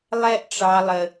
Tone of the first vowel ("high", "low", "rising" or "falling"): high